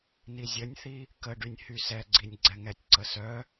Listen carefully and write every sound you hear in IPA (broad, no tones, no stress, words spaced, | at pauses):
nizʲənʲθi | kəɖynʲ hysɛɡ͡ǀinʲ ɡ͡ǀɛŋɛtʲǀə sœ